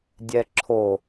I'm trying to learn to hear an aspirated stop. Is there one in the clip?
yes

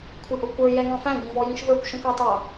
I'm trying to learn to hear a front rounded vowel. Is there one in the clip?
no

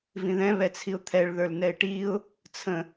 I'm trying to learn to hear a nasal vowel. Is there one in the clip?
yes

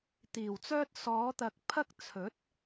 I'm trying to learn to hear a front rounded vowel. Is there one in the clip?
yes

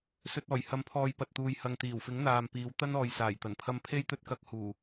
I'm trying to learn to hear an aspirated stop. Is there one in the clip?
yes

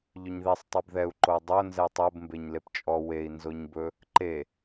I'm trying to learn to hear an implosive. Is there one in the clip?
no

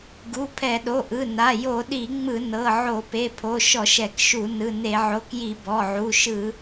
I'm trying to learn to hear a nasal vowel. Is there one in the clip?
no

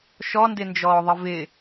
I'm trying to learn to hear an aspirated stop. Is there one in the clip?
no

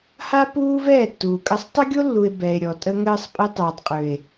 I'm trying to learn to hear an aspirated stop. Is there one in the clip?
no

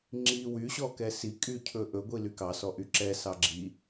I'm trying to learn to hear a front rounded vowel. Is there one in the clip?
yes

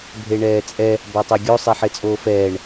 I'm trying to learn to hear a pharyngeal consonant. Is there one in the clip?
yes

